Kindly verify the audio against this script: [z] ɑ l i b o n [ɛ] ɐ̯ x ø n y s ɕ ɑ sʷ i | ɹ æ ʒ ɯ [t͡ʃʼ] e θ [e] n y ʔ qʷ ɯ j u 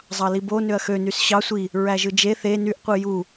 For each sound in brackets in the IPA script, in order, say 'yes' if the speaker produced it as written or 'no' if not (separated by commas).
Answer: no, no, no, yes